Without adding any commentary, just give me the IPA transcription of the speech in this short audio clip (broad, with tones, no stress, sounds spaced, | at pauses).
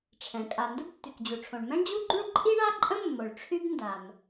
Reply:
ʈ͡ʂʰ ɛ̃˩ kʼ a˩ n d ə˥ b tː y˩ k d͡ʑ u˩ ʈ͡ʂʰ õ˩ ɳ m ɛ̃˥ ɳ d͡ʑ u˥ ɡ͡ǃ ũ˥ ɭ ǃʼ i˥ ɳ a˥ ǃʼ ə̃˥ mː o˩ ɭ ʈ͡ʂʰ y˥ b n d a˩ m